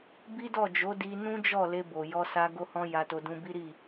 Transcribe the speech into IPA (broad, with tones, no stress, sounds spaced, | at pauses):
b i˦ d ɔ˦˨ d͡ʒ o˨˦ d i˧ n ũ˦ d͡ʒ ɔ˦˨ l e˧ b o˨ j ɔ˧ s a˧ ɡ o˦ h ɔ̃˦ j a˧ t o˧ d ũ˧ b i˦ ɾ i˦˨